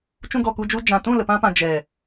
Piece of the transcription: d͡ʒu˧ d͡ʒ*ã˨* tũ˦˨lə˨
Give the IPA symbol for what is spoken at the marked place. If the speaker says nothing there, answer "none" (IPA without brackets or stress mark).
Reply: ã˨